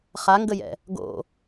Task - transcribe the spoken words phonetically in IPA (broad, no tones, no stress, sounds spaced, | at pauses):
χ a ŋ ɡ ə j ɛ̰ | ɡ o̰